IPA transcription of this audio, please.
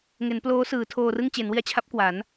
ŋ e˩˦ n p l oː˦˥ s ɯː˩˦ tʰ oː˧ r ɯ˥˩ ŋ t͡ɕ e˩˦ n w i˧ a̯ t͡ɕʰ a˦˥ p̚ k w a˩˦ n

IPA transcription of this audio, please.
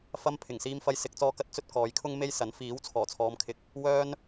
f ɐ˥ m pʰ ɪ˨˩ ŋ s iː˧ m f ɐ˧ j s ɪ˨˥ k̚ t͡s ɔː˧ k ɐ˧ t̚ t͡s ɵ˥ t̚ k ɔː˨˥ j kʰ ʊ˥ ŋ m e˥ j s ɐ˨˥ n f iː˨˥ w t͡sʰ ɔː˨˩ t͡sʰ ɔː˨˧ m kʰ ɪ˧ k̚ | w œː˥ n

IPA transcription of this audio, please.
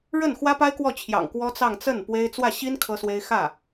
ɻ ə˥˩ n x w ä˥ p a˥ ɪ̯ k w ɔ˥˩ t͡ɕʰ j ɑ̰˨˩ ŋ k w ɔ˥ t͡s ɑ˥˧ ŋ t͡s ə˥˩ n p w e˥ ɪ̯ t͡s w ä˥˩ ɕ i˥ n kʰ ɤ˥ s w e˥ ɪ̯ x ä˥˩

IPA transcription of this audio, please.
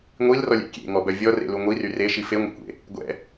ŋʷ i l r ɔ lʲ ɛ̰ kʲ ḛ ŋ ɔ b œ vʲ ɔ r ḛ l u ŋʷ i r y r e ʃ i f e ŋʷ ḭ kʷ ḛ | ɡʷ ɛ̰

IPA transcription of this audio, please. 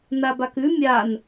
n a b a k ʉ mʲ a n

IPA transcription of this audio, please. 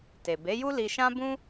t e˨ b e˨˦ j u˦ l i˧ ʃ ã˦ b ũ˦

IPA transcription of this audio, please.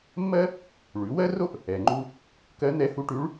mː ɜ˥ | ɭ ʉ˩˧ w ɜ˥ r o˥ ʔ | ɛ˩ ŋ͡ǃ u˧ | k ɜ˧˥ n̪ ɛ˧˥ h u˧˥ ʈ ʉ˧˥ ɭ

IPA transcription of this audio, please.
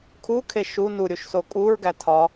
kʰ u kʰ e ʃ u n u ɾʲ u ʃ s o kʼ u ɹ ɡ æ tʰ ɒ

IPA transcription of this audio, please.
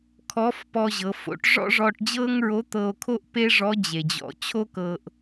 kʰ ɔ˧˥ f p ɔ˧ ʑ ɤ˩˧ f o̰˧˥ ʈ ʐ ɔ̰˥ ʐ ɔ˧ ʈ d͡ʑ ɤː˥ ŋ ɹ o˧˥ t̪ ɤ˧ o̯ kʰ o˥ ʔ p e˥ ʐ ɔ˧˥ d͡ʑ e˩ d͡ʑ ɔ̰˩˧ t͡ɕʰ o˥ k ɤː˧ ʔ

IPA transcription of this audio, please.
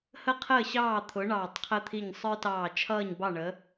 h ə˥˨ qʰ əː˥˨ ɕ ɑː˥˨ t̪ʰ ʊ˨˥ ɳ ɑː˧˩ tˤ qʰ ə˦ t̪ʰ i˧˩ ɲ sˤ ə˞˦ t ɑː˧˩ t͡ʃʰ ʌː˥˨ ɲ b ɑ˥˨ ɳ əː˨˥

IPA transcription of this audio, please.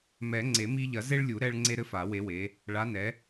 m ɛ˨˩˦ ŋ͡ǀ e˨˩˦ m i˦ ʎ ɐ˨˩˦ z e˦ ɭ lʲ u˨˩˦ ɾ ɛ˦ ɭ ŋ͡ǀ e˦ ɾ ɘ˦ f a˨˩˦ w e˨˦ w e˨˦ | ɭ a˨˦ n ɛ˨˦

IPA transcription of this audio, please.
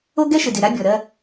o˦ ɡ ɛ˦ ʃ ɪ˨ d ɪ˨ ɾ a˦ bʲ ɔ˨ ɾ ɜ˦

